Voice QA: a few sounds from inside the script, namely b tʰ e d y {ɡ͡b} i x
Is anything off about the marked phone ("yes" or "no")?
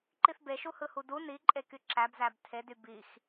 yes